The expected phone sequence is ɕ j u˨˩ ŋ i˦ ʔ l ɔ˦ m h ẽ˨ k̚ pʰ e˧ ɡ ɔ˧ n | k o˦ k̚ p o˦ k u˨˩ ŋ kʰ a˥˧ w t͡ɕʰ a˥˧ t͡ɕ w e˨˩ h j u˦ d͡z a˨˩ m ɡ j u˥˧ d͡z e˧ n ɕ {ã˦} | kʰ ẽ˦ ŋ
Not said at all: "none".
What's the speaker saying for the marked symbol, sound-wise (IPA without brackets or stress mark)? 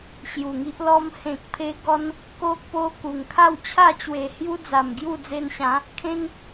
ã˨˦